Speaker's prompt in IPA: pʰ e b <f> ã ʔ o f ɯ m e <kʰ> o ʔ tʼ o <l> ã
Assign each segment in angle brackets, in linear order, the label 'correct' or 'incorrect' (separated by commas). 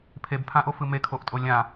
incorrect, correct, incorrect